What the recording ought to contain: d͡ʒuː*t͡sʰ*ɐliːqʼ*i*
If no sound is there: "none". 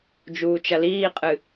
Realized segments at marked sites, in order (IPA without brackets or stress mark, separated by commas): t͡ʃ, ɨ